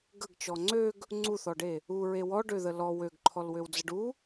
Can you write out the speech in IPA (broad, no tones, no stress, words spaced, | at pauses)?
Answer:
ɡəɡt͡ʃɔ ŋ͡ǀøɡ | ŋ͡ǀuθɔɖe | uɹe wɔɖøðə lɔ wøɡǃʰɔlwøwd͡zəɖ u